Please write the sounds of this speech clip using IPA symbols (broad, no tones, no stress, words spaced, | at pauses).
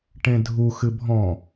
ʈẽdʱu xɨbʱɔ̃